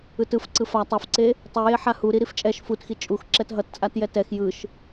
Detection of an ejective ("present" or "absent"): present